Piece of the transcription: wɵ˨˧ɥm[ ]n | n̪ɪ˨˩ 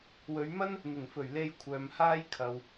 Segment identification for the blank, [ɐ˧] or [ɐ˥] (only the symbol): ɐ˥